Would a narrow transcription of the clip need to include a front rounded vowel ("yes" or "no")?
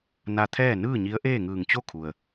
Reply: no